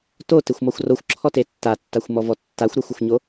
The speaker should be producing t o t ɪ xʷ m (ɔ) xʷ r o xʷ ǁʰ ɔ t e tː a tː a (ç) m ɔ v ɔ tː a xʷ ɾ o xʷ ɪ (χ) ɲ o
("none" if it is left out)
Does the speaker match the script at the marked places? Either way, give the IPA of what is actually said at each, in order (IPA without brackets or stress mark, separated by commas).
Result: ɔ, xʷ, xʷ